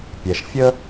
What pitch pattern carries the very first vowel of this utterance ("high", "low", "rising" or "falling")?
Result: low